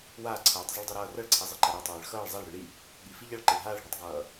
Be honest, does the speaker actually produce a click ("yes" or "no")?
yes